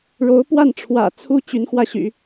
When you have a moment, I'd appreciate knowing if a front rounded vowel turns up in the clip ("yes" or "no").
yes